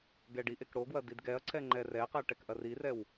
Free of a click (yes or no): no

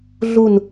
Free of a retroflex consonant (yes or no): yes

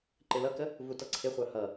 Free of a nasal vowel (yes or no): yes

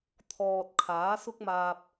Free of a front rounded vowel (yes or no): yes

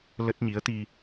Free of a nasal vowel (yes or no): yes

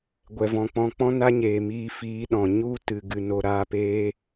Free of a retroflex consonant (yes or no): yes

